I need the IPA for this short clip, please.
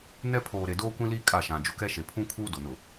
n ɛ˦ pʰ oː˨ ɾ e˨ d oː˦ kʷ ĩ˦ l iː˦ kʼ a˦˨ ʃ ã˨ d͡ʒ u˨ k ɛ˦ ʃ e˨ pʰ ũ˦ kʰ uː˦ d o˨ n ʊ˨

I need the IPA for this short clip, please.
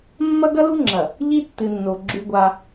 mː ɐ˦ ɡ ɐ˦ l u˦ ŋ͡ǁ ɐ˨ | ʎ i˦ tː ɨ˨ nː o˨ ɡ͡ǁ ʉ˦ ɡʷ a˦

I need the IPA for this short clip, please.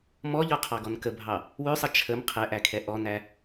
m ɔ ʎ ɔ qʰ ɑ ɡ ɔ n k ə bʱ ɑ | w ʉ sˤ ə t͡ʃʰ ə m qʰ ɛ ʔ æ kʰ ɛ ʔ ɔ n æ

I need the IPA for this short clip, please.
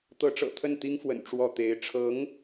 t̪ ɤ˧˥ ʈ͡ʂ ɤ̰˨˩ t̪ʰ ə˥˩ n t̪ i˥ ŋ f w ə̰˨˩ n ʈ͡ʂ w ɔ˥˩ t̪ e˧˥ ɪ̯ ʈ͡ʂʰ ɤ˧˥ ŋ

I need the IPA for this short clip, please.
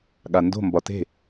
ɠ a n d o̤ m b ɒ t e̤

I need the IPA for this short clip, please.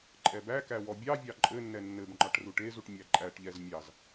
ǃʼ ɛ b æ k æ w ɔ bʲ ɑ vʲ ɑ ǃʼ ɘ nː ɛ nː ɘ b ŋ͡ǃ ɑ ʈ r u ʈ e z u ʈ mʲ æ ǃʼ æ ʈ ʎ ɛ z mʲ ɑ z

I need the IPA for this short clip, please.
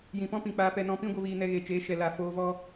j ĩ˨ p ɔ̃˦ p ĩ˨ k͡p aː˧ p ɛ˨ n ɔ̃˧ p ĩ˦ ɡʷ ə˧ v iː˨ n ɛ˧ ɣ e˨ t͡ʃ eː˨˦ ʃ ɛ˨ l a˨ f oː˧ v ɔ˦

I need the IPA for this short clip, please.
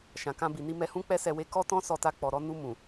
ʃ ã˨ k ã˧ b i˨ n i˧ m ɛ˧ h ũ˦ k͡p ɛ˦ s ɛ˧ w e˧ k ɔ˦ t ɔ̃˦ s ɔ˧ t a˧ k͡p ɔ˨ ɾ ɔ˨˦ n u˧ m ũ˨

